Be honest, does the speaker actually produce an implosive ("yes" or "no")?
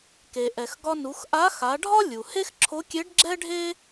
no